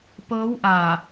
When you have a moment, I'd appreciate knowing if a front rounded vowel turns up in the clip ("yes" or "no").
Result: no